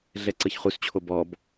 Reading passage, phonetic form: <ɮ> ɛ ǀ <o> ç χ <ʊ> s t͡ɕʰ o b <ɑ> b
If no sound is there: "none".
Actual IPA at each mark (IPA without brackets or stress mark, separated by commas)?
ɮ, ɤ, u, ɔ